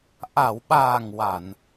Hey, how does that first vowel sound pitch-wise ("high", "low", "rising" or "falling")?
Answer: low